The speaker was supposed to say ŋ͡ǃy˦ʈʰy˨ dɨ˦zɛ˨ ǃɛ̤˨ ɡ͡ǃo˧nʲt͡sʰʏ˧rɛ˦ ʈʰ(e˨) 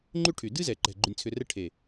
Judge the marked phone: correct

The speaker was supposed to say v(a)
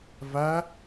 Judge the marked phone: incorrect: æ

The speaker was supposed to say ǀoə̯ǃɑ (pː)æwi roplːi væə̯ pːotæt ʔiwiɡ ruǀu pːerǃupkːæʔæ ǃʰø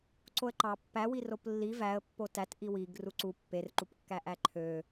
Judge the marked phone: correct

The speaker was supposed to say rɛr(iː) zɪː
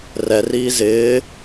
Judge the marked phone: correct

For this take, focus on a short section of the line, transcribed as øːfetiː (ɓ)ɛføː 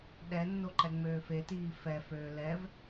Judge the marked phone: incorrect: f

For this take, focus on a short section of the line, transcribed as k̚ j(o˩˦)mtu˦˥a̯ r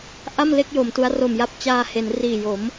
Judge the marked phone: correct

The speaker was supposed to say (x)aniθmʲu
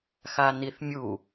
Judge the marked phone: correct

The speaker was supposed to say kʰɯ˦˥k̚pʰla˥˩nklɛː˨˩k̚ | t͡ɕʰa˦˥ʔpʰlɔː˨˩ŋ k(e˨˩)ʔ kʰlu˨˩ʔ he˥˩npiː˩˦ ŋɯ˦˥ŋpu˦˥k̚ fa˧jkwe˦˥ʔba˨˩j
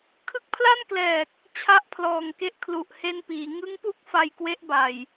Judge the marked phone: incorrect: e˦˥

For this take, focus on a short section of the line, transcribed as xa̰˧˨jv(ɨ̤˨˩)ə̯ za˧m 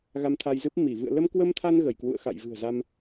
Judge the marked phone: correct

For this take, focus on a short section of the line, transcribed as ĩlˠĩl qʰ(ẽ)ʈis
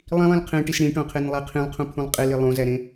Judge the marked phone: correct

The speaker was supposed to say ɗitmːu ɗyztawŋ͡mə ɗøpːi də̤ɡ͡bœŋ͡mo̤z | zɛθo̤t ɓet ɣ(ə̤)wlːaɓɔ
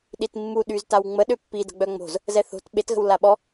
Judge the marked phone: correct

